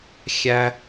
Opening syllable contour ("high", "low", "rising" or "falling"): high